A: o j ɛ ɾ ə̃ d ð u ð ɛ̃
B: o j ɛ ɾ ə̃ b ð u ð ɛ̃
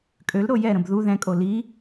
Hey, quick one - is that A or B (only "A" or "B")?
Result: B